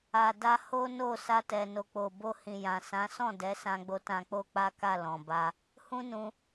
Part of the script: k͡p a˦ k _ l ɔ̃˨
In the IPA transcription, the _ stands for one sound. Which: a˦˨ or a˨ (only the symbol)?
a˦˨